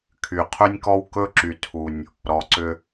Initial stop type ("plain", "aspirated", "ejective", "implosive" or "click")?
aspirated